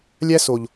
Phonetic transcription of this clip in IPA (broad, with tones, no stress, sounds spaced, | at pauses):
lʲ æ˦ s o˨ ʎ